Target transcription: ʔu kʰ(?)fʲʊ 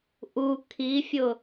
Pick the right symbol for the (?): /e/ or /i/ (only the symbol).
i